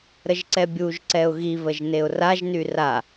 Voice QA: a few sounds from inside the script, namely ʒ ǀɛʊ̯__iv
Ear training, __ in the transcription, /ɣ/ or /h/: ɣ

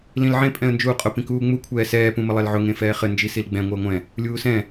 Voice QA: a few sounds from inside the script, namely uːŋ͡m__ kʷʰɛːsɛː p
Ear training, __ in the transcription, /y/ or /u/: u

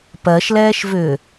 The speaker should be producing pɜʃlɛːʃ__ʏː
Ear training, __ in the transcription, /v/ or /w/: v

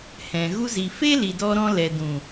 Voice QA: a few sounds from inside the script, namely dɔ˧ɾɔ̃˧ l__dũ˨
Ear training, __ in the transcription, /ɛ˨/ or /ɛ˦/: ɛ˨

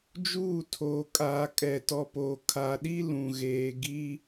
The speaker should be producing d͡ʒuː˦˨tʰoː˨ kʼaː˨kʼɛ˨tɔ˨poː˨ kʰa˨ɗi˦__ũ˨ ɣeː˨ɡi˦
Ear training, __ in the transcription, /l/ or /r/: l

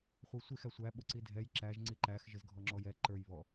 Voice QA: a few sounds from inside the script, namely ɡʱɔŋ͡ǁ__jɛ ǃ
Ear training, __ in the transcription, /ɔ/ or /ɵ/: ɔ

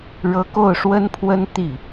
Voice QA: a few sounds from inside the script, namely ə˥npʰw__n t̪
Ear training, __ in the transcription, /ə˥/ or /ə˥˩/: ə˥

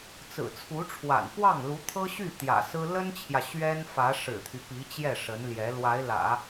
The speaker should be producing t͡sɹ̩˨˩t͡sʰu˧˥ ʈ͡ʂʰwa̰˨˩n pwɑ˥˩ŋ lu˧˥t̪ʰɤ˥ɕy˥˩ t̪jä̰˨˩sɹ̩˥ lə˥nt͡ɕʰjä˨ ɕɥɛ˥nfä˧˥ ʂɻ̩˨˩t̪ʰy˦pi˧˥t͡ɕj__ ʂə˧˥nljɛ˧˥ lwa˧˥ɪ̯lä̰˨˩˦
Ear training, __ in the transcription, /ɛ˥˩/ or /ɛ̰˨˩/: ɛ˥˩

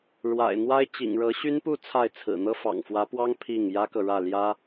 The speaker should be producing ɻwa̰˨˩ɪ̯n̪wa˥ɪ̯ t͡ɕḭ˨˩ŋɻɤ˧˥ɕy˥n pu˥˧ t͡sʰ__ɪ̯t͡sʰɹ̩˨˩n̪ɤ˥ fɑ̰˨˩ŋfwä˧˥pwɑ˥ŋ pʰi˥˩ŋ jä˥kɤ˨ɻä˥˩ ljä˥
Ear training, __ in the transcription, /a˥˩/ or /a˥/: a˥˩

